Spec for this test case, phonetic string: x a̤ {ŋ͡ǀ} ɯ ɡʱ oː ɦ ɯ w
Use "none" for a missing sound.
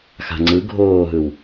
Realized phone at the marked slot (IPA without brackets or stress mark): ŋ͡ǀ